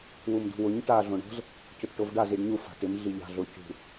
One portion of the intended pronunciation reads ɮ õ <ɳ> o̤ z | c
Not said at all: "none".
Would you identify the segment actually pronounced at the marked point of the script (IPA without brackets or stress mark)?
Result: ɳ